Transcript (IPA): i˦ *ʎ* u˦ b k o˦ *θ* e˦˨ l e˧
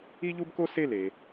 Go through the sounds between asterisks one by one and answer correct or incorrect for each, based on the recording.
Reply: correct, incorrect

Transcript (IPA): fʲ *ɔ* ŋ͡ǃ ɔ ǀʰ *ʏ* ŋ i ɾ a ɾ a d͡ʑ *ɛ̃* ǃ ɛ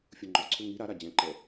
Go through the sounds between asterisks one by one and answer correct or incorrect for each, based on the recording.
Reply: incorrect, correct, correct

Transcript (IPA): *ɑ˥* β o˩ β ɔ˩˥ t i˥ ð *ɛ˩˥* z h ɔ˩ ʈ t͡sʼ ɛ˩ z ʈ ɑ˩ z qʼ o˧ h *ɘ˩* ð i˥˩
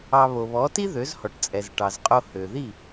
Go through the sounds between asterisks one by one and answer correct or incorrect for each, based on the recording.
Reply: incorrect, incorrect, incorrect

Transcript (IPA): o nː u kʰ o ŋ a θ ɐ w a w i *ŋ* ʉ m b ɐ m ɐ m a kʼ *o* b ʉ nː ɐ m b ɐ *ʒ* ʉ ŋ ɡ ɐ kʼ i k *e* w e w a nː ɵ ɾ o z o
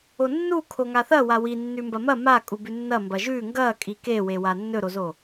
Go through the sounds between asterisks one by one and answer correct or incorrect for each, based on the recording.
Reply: incorrect, incorrect, correct, correct

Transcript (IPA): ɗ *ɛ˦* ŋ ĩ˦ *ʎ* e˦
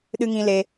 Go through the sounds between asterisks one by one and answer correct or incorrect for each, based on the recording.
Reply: incorrect, incorrect

